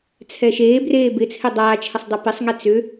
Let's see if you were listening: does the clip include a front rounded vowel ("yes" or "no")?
yes